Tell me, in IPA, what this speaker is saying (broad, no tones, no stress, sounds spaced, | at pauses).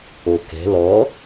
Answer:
o k ɛ̤ l ɔ